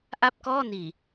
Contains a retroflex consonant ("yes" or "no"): no